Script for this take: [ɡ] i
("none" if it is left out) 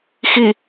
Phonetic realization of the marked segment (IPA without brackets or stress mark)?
x